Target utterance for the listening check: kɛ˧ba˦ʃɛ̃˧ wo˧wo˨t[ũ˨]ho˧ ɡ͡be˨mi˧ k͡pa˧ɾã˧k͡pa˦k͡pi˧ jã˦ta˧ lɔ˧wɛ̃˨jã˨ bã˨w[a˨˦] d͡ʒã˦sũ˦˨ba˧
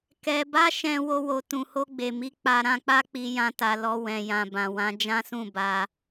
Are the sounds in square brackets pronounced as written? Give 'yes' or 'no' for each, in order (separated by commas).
yes, no